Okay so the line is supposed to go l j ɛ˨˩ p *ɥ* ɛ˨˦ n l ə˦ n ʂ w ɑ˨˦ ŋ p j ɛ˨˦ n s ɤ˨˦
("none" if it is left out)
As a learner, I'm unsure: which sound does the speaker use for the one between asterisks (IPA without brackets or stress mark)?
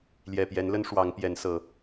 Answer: j